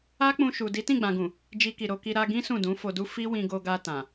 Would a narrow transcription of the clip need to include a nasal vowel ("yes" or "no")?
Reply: yes